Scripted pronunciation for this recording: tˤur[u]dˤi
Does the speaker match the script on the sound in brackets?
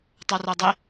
yes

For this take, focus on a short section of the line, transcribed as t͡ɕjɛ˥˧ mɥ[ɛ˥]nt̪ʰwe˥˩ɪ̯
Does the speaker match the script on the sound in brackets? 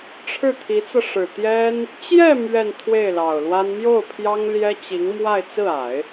no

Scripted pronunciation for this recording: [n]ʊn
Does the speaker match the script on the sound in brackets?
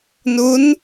yes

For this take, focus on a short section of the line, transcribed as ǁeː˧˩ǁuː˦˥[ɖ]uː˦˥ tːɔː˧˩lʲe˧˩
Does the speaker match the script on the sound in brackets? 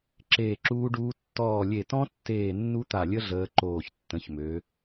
yes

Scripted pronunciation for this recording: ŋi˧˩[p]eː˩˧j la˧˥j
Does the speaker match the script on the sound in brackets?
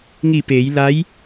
yes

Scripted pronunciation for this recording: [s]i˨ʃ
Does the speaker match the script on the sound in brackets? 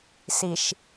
yes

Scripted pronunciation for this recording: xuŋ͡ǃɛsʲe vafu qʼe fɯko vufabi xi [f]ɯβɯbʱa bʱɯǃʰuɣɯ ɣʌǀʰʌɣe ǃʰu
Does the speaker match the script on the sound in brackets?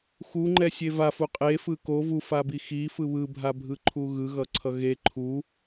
yes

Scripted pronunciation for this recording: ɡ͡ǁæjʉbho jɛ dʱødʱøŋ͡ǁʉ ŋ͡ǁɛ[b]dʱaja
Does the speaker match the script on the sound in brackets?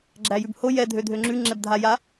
yes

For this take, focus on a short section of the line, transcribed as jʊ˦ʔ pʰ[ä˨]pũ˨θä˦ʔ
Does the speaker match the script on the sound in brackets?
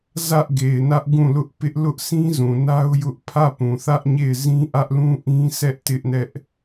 no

